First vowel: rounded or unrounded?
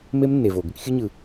unrounded